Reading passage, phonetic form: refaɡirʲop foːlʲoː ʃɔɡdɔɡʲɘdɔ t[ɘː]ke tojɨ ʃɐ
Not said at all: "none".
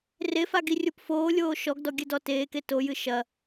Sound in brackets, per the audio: eː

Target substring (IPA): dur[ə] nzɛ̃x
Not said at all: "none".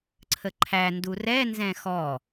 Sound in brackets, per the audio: ɛ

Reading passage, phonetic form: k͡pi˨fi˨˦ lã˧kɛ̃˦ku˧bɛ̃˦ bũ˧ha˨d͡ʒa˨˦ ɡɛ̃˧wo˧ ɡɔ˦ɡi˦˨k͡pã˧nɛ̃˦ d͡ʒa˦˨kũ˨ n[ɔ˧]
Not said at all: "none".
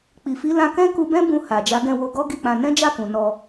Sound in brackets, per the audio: ɔ˧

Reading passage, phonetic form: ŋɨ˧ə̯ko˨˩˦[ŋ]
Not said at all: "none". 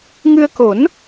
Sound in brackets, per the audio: n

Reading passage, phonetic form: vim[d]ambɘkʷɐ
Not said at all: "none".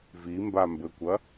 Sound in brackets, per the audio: b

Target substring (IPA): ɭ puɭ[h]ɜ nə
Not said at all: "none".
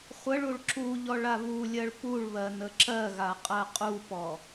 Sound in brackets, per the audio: β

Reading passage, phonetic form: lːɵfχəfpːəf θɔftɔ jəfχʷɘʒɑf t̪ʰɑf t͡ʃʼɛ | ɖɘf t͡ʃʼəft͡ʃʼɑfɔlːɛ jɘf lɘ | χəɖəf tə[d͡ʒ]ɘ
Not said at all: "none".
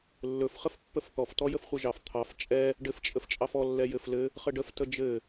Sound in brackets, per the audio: d͡ʒ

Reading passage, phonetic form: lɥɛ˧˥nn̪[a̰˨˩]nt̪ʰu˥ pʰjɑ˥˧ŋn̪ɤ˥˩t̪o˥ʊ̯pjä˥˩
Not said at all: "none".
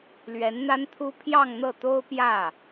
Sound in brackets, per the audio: a˥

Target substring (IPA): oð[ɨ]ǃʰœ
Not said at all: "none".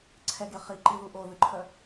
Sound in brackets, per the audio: ɨ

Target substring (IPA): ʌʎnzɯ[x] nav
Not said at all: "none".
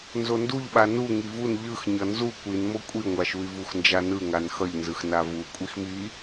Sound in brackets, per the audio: x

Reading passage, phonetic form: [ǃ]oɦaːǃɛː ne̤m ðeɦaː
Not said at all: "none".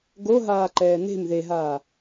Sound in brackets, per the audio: ɡ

